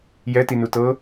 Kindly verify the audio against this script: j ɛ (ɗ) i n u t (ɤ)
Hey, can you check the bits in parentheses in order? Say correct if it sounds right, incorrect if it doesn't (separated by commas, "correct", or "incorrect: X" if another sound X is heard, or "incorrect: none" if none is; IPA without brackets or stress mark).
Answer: incorrect: t, correct